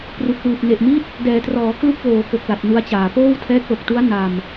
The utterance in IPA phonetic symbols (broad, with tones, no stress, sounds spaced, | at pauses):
p r u˨˩ k̚ w ɯː˨˩ p̚ n e˨˩ ʔ m i˦˥ t̚ | d ɛː˩˦ t r ɔː˩˦ k l u˥˩ k̚ w oː˨˩ k o˨˩ k̚ l a˨˩ t̚ n u˦˥ a̯ t͡ɕ aː˨˩ p oː˥˩ w tʰ ɛː˦˥ k̚ l o˨˩ k̚ t u˦˥ a̯ n a˨˩ m